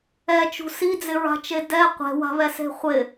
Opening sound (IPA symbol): ɛ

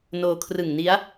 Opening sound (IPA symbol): n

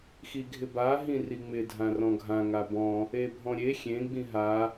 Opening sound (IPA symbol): x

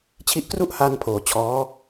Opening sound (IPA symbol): t͡ɕʰ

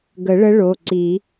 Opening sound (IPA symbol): ɡ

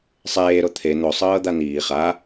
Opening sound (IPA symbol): sˤ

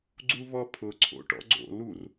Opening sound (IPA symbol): ɡ͡ǀ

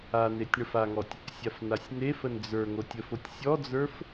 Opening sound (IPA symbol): a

